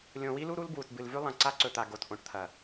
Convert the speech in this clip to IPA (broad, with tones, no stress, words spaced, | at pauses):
lʲõ˨wi˦lu˦ ɾu˦l bwu˨tbɨ˨lvʉ˦ lˠɐ̃˨ ǀa˦ǀɵ˨t̪a˨ ɡo˨t ʔõ˨ʈt̪ʰɐ˨